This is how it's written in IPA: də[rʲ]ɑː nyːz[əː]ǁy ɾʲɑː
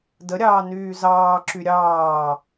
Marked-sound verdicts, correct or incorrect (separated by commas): incorrect, incorrect